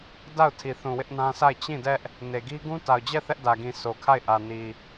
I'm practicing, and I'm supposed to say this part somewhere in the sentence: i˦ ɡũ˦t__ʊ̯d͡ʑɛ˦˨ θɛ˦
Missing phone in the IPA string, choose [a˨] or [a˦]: a˨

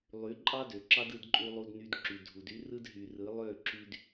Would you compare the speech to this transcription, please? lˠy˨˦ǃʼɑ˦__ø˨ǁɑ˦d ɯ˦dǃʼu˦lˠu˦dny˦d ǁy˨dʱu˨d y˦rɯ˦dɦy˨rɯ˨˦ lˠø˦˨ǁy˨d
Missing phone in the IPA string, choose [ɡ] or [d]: d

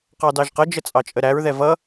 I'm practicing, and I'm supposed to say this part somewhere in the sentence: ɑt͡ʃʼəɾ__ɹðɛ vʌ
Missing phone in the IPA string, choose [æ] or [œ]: æ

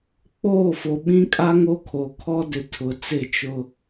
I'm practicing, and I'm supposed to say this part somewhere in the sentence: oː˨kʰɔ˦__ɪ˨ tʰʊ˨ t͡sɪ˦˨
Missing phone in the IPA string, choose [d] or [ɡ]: d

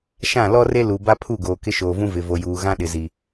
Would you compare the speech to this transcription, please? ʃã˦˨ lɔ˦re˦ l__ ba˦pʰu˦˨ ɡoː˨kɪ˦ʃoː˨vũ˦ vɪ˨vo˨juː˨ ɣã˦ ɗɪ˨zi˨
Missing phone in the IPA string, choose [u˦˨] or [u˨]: u˨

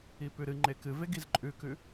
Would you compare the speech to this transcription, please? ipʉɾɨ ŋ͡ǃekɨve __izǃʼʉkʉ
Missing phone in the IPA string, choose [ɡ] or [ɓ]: ɡ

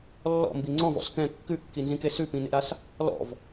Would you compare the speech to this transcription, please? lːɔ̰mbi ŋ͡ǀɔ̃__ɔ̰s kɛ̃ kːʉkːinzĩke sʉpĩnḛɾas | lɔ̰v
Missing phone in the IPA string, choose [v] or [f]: v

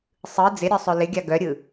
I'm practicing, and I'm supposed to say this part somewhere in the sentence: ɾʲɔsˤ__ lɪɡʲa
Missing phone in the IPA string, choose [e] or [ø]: ø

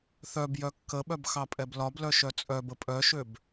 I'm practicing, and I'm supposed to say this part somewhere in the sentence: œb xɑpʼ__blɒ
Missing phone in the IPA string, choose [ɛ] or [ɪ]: ɛ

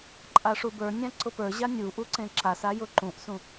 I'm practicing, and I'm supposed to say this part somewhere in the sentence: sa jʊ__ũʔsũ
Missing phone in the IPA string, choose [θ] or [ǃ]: ǃ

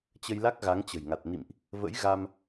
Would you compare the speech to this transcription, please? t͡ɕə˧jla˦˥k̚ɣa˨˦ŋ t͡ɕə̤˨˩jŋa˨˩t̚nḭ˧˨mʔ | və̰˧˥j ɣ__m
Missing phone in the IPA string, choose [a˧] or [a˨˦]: a˧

